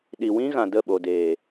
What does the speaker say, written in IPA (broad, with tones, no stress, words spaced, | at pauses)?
ɗi˨wĩ˦ɣã˨ də˦˨ɓo˨deː˨